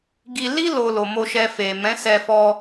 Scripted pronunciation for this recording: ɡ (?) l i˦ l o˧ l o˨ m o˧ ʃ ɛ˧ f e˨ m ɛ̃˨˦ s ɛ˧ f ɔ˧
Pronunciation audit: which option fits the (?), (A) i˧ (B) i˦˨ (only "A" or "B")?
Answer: A